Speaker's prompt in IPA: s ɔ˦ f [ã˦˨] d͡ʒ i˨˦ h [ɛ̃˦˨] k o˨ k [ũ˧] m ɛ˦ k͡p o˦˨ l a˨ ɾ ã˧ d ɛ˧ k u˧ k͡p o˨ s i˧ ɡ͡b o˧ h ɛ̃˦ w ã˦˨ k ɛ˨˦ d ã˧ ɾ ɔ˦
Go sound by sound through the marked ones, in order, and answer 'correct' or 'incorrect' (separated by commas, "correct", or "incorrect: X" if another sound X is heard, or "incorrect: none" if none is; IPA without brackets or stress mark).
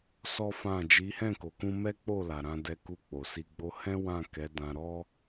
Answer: correct, correct, correct